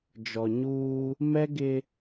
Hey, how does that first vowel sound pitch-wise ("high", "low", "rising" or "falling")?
low